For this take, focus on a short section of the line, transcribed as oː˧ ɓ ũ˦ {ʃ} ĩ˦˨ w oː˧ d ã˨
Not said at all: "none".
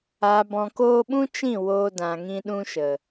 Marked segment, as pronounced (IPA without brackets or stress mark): t͡ʃ